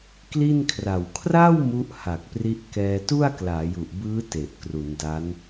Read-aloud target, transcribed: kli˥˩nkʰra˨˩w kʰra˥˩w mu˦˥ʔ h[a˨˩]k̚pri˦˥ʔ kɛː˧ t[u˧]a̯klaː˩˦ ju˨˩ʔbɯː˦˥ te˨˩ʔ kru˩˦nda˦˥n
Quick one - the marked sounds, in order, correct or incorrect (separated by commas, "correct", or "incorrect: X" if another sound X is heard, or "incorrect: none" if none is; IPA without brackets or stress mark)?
correct, incorrect: u˥˩